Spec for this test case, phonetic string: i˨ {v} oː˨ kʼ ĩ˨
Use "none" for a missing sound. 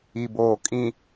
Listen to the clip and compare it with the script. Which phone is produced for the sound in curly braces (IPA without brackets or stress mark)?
b